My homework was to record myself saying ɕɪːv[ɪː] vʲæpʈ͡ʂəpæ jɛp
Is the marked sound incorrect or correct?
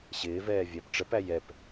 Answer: incorrect